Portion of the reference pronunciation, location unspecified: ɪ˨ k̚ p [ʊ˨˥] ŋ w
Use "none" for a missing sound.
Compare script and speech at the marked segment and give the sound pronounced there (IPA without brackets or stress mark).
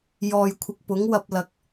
ʊ˨˥